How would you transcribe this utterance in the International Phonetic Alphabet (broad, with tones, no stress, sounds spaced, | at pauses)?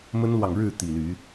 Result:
m ə˦ n l w ɑ˨ ŋ ɻ ɻ̩˥˨ t̪ i˨˩ l y˨˦